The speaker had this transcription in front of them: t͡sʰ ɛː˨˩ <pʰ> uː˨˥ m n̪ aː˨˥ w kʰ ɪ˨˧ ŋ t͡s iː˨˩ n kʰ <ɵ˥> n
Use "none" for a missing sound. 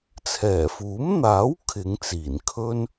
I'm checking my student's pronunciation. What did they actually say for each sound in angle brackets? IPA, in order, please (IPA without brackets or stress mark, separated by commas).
f, ɵ˥